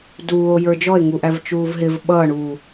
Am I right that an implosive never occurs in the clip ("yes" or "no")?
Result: no